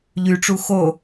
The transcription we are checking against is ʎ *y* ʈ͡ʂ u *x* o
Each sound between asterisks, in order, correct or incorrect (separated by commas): correct, correct